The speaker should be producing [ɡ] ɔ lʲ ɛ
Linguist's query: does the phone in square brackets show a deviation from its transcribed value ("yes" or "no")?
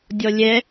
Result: yes